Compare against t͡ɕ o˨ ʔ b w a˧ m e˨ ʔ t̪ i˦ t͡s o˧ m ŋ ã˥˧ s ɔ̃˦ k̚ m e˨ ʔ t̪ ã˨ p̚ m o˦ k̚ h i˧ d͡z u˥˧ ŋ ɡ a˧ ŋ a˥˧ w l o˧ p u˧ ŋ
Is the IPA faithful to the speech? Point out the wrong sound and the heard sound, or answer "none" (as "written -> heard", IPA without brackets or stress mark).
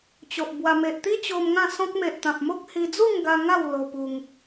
t͡s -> t͡ɕ